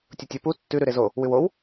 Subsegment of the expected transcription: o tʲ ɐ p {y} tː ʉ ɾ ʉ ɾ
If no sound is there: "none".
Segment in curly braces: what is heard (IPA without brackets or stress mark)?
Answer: u